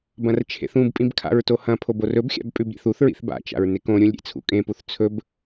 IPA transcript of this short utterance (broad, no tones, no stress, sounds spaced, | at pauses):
b ɐ̃ r t͡ʃʰ ḛ θ ũ b pʼ ĩ b kʰ a̰ ɹ t o h ɐ̃ pʰ o b o r ɵ b xʲ a̰ b pʼ ʉ b ɾʲ ḛ θ u θ ɹ ḭ θ b a̰ t͡ʃ a̰ ɹ n e k õ ɾʲ ũ lʲ ɾʲ ḛ t͡sʰ ṵ kʼ ẽ p u θ t͡sʰ ɵ b